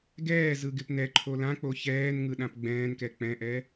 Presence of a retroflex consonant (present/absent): absent